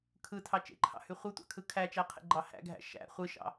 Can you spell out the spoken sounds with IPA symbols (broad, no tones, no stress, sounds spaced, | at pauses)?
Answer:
kʰ ɯ tʰ ɑ t͡ʃ ḛ ǃʰ ɑ̰ h y χʷ ɯ tʷ ɑ̰ kʰ ɯ kʰ æ t͡ʃ æ qʰ ḛ ɡ͡ǃ ɑ h æ̰ ɡʱ æ̰ ʃ æ̰ χʷ ɯ ʃ ɑ̰